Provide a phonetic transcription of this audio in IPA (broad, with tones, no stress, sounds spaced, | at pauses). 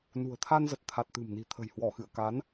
n ṳ˨˩ ə̯ t̪ʰ a˧ n z ə˨˩ t̚ t̪ʰ a˨˩ t̚ t̪ ɨ̤˨˩ m n i̤˨˩ t̪ʰ ə̤˨˩ j h w ɔ˧˩ x ɨ̰˧˨ ə̯ k a˨˦ n